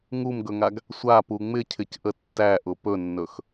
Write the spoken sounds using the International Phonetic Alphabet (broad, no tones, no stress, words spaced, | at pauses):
ŋumɡɵŋaɡ | sʷapu ŋ͡mɪcʰɪcʔə tːæʔʊ pɵnːɵx